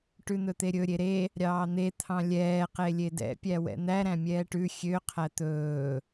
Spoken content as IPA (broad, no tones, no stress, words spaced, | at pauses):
ʈʉn̪ɵt̪eɾʲɵ ɾʲeɾe | ɾʲɑːn̪e t̪ʰɑ̃lʲɛː qelʲedɛ̰ pʲæwɛ̰n̪æ ɾæ̃mʲɛːʈʉ xʲø qʰæt̪ɵː